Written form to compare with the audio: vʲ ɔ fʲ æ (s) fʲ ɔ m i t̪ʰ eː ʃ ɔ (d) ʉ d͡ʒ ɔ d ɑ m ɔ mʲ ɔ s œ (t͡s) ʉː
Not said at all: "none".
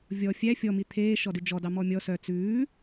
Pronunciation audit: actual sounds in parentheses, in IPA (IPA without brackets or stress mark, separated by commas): none, d, t͡s